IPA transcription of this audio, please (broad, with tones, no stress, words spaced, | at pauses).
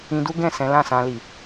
ĩ˧du˦ ɡɛ̃˦˨sɛ̃˨˦lã˦˨ sã˧li˨